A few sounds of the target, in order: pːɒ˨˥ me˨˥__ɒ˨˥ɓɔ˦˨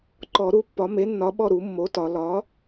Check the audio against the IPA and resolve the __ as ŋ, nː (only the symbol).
nː